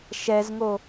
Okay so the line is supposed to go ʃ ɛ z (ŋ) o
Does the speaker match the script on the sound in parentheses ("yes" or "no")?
yes